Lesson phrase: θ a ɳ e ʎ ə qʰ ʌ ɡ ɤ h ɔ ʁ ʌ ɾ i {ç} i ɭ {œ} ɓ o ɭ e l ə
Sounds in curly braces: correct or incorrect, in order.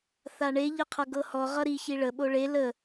correct, incorrect: ə

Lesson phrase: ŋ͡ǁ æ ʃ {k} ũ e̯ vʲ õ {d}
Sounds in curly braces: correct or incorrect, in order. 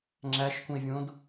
correct, correct

